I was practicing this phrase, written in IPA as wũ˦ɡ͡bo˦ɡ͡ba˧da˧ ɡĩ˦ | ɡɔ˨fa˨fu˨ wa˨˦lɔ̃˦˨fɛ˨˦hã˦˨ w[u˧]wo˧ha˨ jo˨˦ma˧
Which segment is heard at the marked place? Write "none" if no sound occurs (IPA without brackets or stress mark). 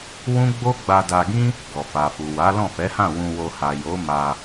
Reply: ũ˧